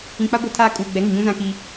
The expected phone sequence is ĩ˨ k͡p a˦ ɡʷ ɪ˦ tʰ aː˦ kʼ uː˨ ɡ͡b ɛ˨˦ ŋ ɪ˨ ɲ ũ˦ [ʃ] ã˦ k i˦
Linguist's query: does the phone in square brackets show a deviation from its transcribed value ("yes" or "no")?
yes